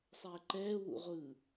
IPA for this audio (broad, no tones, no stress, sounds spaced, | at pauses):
sˤ ɛː ǃ ɛː w ṵ ʁʷ ɯ